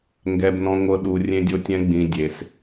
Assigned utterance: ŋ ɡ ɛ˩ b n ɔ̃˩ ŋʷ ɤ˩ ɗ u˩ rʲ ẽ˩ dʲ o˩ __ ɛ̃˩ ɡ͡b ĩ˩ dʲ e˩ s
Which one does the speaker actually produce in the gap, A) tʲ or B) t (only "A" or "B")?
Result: A